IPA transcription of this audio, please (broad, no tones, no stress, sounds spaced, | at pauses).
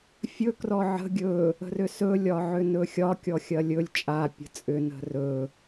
fʲ ɵ k r ɔ ʕ ə̤ ɡʲ ɵ | ə̤ r ʏ s ɵ lʲ ɒ ʕ ʏ n ɵ xʲ ɒ kʲ ɔ xʲ ɐ lʲ ɵ lʲ t͡ʃʼ a pʲ ə̤ t͡sʼ ʏ n ə̤ r ɵ